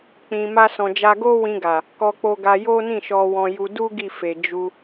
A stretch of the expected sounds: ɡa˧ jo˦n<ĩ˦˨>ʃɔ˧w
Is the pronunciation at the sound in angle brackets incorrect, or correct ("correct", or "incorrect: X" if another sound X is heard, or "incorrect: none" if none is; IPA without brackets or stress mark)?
correct